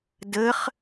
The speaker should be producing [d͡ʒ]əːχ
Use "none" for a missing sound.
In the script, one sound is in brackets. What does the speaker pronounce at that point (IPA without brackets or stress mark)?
d